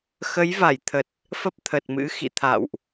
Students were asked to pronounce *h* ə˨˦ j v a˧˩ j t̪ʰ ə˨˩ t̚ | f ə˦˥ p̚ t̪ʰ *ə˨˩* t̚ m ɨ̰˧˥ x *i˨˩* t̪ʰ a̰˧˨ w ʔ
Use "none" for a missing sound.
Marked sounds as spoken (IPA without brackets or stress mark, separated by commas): x, ə˨˩, ḭ˧˨